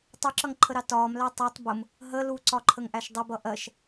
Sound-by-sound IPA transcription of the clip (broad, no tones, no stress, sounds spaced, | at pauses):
tˤ u ǁ ʌ ŋ ǃʰ ə ɾ ɑ t ɒː m l æ tˤ ʊ tˤ b ʊ m | ɦ ə l u ǀ ɒ ǃʰ ə ŋ ʔ æ ʃ dˤ ə b ʌ ʔ ɜ ʃ